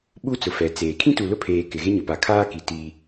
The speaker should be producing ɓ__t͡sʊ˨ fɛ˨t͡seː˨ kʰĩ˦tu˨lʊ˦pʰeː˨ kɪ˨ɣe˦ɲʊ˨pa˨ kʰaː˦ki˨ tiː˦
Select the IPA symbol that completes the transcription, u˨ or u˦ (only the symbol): u˦